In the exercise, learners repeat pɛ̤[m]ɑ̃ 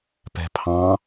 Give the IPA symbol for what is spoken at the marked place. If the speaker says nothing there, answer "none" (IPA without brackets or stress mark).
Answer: pʰ